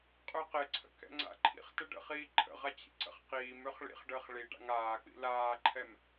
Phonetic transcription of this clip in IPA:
qʼ ø q ɪ ǀʰ ə̰ k ɛ̰ ŋ͡ǀ a̰ ǃʰ ḭ χ t ə ɖ ə̰ χ iː ǃʰ ə̰ ʁ a t͡ɕ ḭ ǀ ə̰ χ q iː m ø χ ɭ ḭ χ ɖ əː χ ɭ i ɖ a̰ ŋ aː k͡p ḭ l aː ǃʰ ɛ m

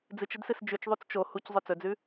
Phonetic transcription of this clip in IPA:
d͡z ɨ t͡ʃ ɨ d s ɨ s d͡ʒ ʉ t͡ʃ ðˤ u t͡s t͡ʃ o h u c zˤ ɵ t͡s ɵ d͡z ʉ

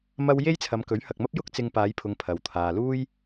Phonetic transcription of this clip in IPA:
m ɐ˥ w j e˥ j t͡sʰ ɐ˨˧ m k ɵ˨˥ ɥ h ɐ˨ k̚ m ɐ˥ p̚ j ʊ˥ k̚ t͡s ɪ˧ ŋ p aː˨˧ j pʰ ʊ˨ ŋ pʰ ɐ˨ w t̪ʰ aː˨ l uː˥ j

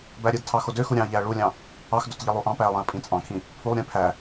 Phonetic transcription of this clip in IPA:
b æ ɾʲ ɯ d tʰ ɑ x o d ø x u ɾʲ ɑ̃ ɐ̯ ʎ æ ɐ̯ ɭ u lʲ ɑ̃ | ɑ x d o t ʎ i lˠ u ʔ ɑ̃ p æ ɐ̯ lˠ ẽ ɐ̯ pʼ ĩ t͡sʼ ɑ̃ kʰ ĩ | pʰ u lˠ ɾʲ ẽ pʰ æ

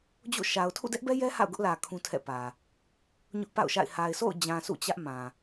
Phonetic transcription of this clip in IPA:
d͡ʑ o̰˦˨ ʃ a˨ ʊ̯ tʰ ṵ˦˨ d ɛ˦ ʔ b ɛ˦ j ɛ˦ h a̰˦˨ ʊ̯ ɡ ʊ˦ ʔ l ä˨ kʰ ũ˦ tʰ ɛ̰˦˨ p ä˨ | ɲ ʊ˦ ʔ p a̰˦˨ ʊ̯ ʃ a̰˦˨ ɪ̯ h a˨ ɪ̯ s o̰˦˨ ʊ̯ d͡ʑ ã˨ sʰ ṵ˦˨ t͡ɕ ä˦ ʔ m ã˨

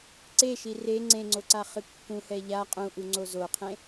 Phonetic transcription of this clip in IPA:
ǀ e ʃ i r e ŋ͡ǀ ẽ ŋ͡ǀ o ǀ a χ ɨ kː ũ h ɛ ʎ a qʼ ũ ʔ u ŋ͡ǀ o z o qʰ ẽ

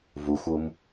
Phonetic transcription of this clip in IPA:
v u xʷ u m

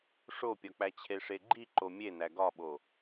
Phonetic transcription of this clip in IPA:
ʂ o pʲ ɒ k͡p æ t͡ɕʰ e ʂ e ɡ͡ǃ i ǃ o mʲ e n æ ɡ ɒ ɓ o

